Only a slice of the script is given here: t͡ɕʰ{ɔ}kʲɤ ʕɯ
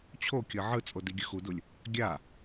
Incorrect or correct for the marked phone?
incorrect: o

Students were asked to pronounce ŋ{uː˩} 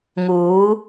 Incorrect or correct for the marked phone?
incorrect: uː˩˧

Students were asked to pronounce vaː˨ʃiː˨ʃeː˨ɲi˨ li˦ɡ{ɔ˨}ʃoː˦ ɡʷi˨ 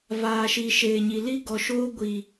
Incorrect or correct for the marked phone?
correct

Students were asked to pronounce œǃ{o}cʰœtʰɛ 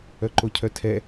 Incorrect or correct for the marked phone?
correct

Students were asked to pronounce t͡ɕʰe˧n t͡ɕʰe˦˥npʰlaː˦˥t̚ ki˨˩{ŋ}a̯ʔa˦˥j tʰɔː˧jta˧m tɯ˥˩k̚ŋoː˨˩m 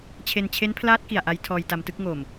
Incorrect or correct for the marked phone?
incorrect: none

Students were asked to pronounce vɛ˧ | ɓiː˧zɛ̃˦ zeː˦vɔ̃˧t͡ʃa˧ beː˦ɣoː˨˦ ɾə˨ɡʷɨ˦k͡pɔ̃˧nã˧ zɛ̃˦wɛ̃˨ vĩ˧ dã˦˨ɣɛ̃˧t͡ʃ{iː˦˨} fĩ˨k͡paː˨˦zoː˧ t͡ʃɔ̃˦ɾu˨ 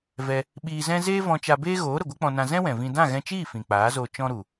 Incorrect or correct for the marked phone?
correct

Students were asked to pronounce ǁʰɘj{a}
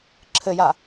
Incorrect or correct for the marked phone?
correct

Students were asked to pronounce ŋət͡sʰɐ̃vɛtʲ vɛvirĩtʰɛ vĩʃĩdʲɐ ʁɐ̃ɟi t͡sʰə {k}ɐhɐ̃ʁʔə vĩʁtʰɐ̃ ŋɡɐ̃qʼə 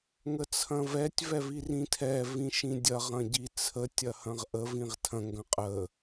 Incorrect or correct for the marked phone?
incorrect: tʲ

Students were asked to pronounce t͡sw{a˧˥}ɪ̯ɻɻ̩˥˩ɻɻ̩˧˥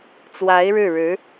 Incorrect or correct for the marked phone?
correct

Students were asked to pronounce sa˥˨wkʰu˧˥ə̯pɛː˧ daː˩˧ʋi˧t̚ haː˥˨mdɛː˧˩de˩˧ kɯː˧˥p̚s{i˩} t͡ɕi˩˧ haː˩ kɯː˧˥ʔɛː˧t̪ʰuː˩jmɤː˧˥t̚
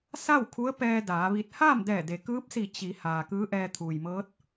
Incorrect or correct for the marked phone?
incorrect: i˧˩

